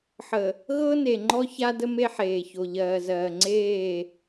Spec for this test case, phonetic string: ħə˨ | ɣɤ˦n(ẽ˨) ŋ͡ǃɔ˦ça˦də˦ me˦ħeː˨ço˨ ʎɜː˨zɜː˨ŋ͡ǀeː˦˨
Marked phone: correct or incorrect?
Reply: incorrect